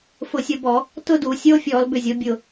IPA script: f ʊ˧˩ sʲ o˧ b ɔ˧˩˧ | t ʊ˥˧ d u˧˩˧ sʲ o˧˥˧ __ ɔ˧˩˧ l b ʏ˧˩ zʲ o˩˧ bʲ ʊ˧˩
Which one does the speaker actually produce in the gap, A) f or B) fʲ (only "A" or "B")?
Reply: B